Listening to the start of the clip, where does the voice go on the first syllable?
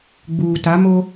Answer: low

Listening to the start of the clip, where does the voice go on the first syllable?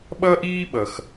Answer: high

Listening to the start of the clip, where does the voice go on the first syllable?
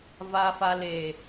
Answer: low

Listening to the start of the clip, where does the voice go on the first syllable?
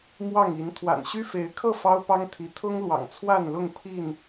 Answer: falling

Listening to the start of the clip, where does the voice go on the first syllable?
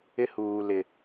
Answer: high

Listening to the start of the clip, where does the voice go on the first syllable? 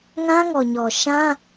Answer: high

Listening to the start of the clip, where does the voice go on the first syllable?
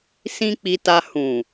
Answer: high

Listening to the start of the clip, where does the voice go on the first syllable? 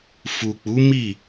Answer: low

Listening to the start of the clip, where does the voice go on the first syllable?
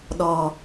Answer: high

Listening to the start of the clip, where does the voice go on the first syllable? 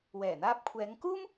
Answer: low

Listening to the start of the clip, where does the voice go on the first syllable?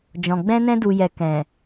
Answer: low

